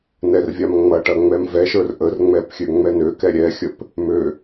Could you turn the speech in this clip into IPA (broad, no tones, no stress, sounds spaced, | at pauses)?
n ɛ r vʲ a m ŋ͡m ɐ ʈ ɐ ŋ͡m ɛ m v ɛ ʃ ə˞ r ʔ ə r ŋ͡m ɛ p xʲ ø ŋ͡m ɛ n ø k ɛ ɾʲ ɛ xʲ ə p | m ø